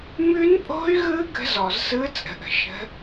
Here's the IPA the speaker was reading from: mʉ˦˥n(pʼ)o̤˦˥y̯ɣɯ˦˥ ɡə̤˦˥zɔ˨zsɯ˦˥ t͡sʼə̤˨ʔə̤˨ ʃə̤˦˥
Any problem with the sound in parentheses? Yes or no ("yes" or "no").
no